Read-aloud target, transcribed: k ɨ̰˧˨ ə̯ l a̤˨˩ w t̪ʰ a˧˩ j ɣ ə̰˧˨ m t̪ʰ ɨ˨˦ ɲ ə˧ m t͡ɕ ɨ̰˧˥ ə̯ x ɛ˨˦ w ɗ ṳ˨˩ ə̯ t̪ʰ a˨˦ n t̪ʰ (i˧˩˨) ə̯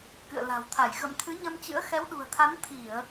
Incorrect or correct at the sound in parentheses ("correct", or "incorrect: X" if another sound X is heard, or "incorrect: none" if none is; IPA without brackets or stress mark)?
correct